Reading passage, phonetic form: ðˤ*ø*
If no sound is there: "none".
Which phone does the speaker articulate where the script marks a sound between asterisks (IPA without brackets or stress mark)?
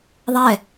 ɛ